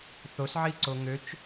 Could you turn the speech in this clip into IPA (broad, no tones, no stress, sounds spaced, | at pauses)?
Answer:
θ o s ʕ i ǀ o ŋ ø t͡ʃ